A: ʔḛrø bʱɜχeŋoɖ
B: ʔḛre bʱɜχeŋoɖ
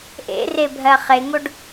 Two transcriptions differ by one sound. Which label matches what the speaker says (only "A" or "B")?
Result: B